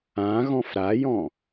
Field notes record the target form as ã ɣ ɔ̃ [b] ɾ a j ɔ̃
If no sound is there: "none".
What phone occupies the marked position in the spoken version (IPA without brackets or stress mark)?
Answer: f